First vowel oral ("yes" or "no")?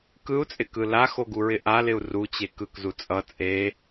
yes